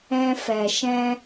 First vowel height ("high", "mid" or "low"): mid